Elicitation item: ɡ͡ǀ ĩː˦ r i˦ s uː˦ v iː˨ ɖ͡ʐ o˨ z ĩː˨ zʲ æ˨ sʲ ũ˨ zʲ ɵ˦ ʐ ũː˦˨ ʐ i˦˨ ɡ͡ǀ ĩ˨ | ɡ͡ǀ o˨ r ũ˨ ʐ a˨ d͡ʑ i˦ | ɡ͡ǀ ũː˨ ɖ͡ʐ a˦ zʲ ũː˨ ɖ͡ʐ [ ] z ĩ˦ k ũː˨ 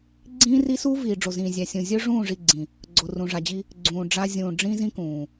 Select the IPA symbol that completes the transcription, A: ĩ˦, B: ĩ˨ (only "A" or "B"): A